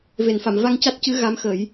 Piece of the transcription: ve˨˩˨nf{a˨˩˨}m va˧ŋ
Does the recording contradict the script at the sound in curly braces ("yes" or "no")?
no